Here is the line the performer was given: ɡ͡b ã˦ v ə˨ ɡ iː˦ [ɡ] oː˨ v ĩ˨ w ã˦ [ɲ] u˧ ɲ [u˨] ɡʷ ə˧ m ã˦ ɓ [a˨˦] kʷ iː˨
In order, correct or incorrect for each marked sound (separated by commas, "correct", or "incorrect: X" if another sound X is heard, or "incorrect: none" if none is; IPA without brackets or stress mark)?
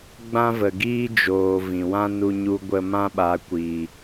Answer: incorrect: d͡ʒ, incorrect: n, incorrect: u˧, correct